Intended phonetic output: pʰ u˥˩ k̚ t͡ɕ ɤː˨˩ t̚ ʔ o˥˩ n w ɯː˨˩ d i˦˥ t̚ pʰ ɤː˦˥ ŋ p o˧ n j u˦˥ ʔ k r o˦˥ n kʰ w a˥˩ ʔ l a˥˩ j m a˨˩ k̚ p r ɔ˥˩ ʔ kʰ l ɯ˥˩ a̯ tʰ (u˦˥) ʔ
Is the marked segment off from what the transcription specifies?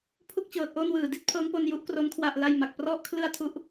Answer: yes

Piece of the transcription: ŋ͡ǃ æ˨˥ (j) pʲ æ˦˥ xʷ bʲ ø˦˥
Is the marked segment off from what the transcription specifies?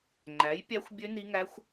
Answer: no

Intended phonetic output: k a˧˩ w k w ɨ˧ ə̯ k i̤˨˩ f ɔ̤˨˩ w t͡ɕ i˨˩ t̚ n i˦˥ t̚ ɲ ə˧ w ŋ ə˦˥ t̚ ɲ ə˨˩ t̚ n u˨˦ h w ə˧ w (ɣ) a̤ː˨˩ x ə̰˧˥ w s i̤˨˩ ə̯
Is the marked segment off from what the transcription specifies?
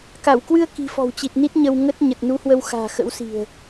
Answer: yes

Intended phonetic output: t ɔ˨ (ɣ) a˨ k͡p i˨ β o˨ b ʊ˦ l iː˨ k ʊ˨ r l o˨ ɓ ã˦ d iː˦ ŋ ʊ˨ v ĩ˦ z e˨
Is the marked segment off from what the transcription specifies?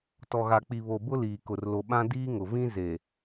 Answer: no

